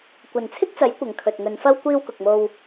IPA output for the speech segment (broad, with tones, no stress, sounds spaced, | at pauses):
kʷ ɐ˨ n t͡sʰ ɪ˥ k̚ t͡s ɐ˨˥ j kʷ ɐ˨ ŋ kʰ ɵ˨ t̚ ŋ ɵ˨˧ n f ɐ˥ w kʷ iː˧ w k ʊ˨ k̚ m o˧ w